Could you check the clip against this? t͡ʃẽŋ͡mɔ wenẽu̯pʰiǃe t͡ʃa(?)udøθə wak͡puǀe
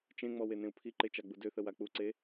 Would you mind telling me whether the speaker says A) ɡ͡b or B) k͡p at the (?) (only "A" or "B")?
A